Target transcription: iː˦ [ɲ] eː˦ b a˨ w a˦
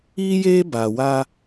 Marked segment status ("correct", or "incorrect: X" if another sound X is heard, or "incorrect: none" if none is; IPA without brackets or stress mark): incorrect: j